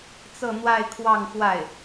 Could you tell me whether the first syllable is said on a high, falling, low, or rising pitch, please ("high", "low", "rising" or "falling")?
falling